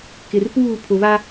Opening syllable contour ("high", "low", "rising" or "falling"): low